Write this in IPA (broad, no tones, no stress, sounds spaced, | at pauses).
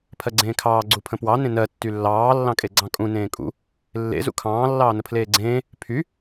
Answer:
pʰ ɜ ɡ͡ǀ ẽː kʰ ɑː ɡ͡ǀ u pʰ ə̃ p w ɑ n ẽ n ɜ tː y lː ɑː lː ɑ̃ kʼ e ɡ͡ǀ ɑ̃ kʼ ũ n ẽː kʼ ṵ | lː ḛ z ṵ kʰ ɑ̃ː lː ɑː n ə pʰ l eː ɡ͡ǀ ẽː | pʰ y